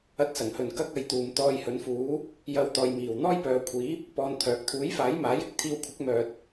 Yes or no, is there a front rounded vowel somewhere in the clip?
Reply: yes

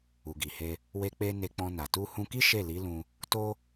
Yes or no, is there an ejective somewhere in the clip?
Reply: no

